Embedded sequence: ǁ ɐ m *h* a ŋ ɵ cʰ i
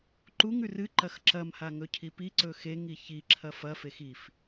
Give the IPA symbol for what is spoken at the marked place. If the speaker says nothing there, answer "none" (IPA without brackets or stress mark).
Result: h